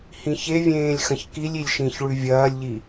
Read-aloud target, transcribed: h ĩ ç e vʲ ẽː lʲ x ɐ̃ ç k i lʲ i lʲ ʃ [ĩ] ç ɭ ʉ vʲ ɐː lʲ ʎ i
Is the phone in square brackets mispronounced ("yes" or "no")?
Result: no